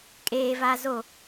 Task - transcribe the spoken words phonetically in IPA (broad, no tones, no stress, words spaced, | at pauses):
kʼeː va zo